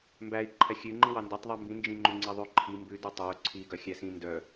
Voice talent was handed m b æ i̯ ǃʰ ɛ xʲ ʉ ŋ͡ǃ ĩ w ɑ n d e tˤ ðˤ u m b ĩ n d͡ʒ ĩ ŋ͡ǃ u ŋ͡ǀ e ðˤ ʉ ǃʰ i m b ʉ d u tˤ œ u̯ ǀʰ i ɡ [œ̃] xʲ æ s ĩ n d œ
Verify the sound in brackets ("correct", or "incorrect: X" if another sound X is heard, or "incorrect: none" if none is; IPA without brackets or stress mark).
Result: incorrect: œ